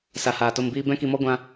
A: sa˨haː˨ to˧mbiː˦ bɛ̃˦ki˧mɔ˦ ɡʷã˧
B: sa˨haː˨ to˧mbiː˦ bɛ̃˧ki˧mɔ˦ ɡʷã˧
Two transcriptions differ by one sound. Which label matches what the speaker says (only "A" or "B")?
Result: A